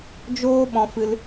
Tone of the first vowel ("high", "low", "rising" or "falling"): high